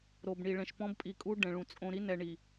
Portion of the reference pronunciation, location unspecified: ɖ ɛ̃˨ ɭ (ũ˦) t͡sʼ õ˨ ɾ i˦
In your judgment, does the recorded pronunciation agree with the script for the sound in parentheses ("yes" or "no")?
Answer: no